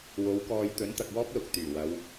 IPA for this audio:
w o˨˥ w k ɔː˧ j t̪ ɵ˨˥ n t̪ ɐ˨ k̚ w ɔː˥ p̚ l ʊ˨ k̚ t̪ yː˨˩ w ɐ˨˧ w

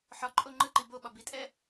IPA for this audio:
ħ ɒ ǃʼ o ŋ͡ǃ ɯ ǃ i b o ɓ ɒ b i tʼ ɛ

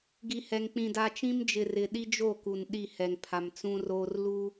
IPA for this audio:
ɡ i˨ h ɛ˨ ŋ k͡p ĩ˨ d a˨ t͡ʃ ĩ˦ m d͡ʒ ɪ˨ r ɪ˨ ɗ i˦ d͡ʒ o˦˨ k u˨ n ɗ i˦˨ h ɛ˨ ŋ pʰ a˨ m t͡s ũ˦ r oː˦ r l u˦

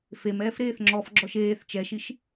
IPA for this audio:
f e m ɛː f ɾ eː θ ŋ͡ǁ ɔ f ɡ͡ǁ ɔ ʃ eː θ t͡ʃ ɛ ʃ i ʃ

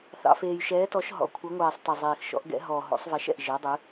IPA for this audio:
θ ɑ̰˩ f eː˩ j ʃ ɛː˩˧ t ɔ˩˧ ʃ ɦ ɔ̰˩ kʷʰ ə˩˧ ŋʷ ɛː˩ sˤ t ɛ˩ zˤ eː˩ x ʃ ɔ̰˩˧ ʔ ɡ ɛ̰˩˧ ɦ ɔ˩ ɦ o̰˩˧ sˤ v ɛ˩˧ ʃ ɛ̰˩ ʔ ʒ e˩˧ dˤ ɨ˩˧

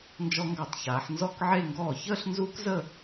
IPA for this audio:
n d͡ʒ ɔ˧ ŋ ɡ a˧˩˧ tˤ ç aː˩˧ ħ n z ɔ˥˧ k ʕ e˥˧ ŋ ɡ ɔː˥˩ ç əː˥˧ ɬ n z uː˦˥ k z əː˥˧

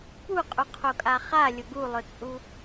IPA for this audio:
p u qʼ u qʰ o kʼ a χ a lʲ ʊ ɡ u lˠ ʊ t͡sʼ u

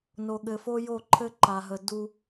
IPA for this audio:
n o˨ ɠ ɘ˨ f o˦ j o˦˨ ǃʰ ɘ˦ ǃ a˨ ɦ ə˨ d u˦

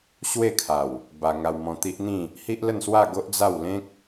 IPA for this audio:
ɕ w e˥˧ kʰ a˨˩ w | b a˧ ŋ a˧ w m ɔ̃˧ t̪ i˦ ʔ n̪ ĩ˥˧ | h i˦ ʔ l ə˥˧ n s w a˥˧ ɡ o˦ ʔ d͡z a˥˧ w l ẽ˦ k̚

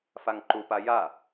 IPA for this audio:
f a ŋ ǃ u p a j a

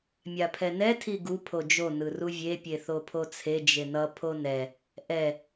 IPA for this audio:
mʲ a pʰ ɛ n ɛ tʰ i ɡ u pʰ o d͡ʒ o n ɯ r u vʲ e pʲ e θ o pʰ o t͡sʰ e d͡ʒ e n ʌ pʰ o n ɛ | ʔ ɛ

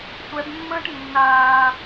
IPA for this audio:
sʷ ɛ b mː ə̃ː ʈ nː aː

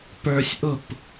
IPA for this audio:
p ə˞ sʲ ʔ ʊ p

